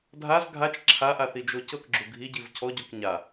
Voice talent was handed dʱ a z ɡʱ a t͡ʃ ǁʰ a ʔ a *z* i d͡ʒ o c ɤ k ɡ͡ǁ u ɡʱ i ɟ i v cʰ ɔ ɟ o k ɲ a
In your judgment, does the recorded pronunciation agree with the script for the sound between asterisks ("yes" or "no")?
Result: no